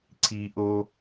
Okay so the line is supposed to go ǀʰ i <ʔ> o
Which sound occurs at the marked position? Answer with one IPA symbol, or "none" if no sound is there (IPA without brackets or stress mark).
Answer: ʔ